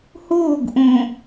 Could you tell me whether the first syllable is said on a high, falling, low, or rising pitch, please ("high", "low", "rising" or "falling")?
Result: falling